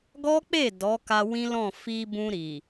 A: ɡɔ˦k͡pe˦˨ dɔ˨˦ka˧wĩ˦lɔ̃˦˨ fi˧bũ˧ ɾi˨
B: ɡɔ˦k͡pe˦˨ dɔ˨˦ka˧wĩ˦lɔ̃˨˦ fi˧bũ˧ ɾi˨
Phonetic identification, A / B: A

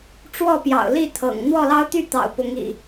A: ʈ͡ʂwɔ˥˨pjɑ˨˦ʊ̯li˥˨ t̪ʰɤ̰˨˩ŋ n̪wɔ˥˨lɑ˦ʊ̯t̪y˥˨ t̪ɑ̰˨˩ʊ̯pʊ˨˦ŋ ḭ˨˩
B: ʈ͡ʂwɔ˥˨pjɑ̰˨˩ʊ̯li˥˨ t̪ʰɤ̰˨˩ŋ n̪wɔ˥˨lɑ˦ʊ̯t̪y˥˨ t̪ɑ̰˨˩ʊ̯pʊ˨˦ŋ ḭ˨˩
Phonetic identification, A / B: B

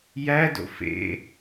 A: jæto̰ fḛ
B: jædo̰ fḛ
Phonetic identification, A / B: B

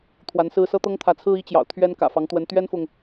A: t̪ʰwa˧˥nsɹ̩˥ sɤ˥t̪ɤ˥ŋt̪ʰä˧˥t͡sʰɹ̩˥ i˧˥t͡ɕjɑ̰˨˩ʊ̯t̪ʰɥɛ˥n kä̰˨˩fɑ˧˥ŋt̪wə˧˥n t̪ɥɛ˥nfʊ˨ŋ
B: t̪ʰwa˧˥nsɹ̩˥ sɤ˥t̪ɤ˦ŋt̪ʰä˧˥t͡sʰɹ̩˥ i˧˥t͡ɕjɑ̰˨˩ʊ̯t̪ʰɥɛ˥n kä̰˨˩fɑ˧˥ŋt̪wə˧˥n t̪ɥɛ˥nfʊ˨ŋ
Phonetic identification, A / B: A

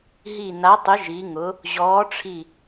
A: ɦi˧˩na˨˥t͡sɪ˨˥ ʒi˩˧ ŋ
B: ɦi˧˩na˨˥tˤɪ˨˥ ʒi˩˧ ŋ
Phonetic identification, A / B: B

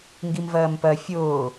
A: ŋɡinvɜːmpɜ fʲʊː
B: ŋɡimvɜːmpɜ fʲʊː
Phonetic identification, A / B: B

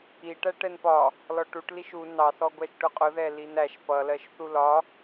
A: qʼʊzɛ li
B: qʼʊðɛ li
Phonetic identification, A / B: B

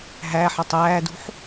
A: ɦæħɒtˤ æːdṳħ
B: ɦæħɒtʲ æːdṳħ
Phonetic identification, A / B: A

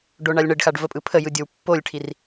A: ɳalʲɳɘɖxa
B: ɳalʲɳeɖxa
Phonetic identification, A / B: A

